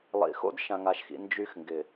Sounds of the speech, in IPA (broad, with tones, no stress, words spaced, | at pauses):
lˠḭ˨xo̰˦d ʃã˨ŋa˨ʃxḭ˨ nd͡ʒy˦xŋɡɪ˨